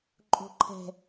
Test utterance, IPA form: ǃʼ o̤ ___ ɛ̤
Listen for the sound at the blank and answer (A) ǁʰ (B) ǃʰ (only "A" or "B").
B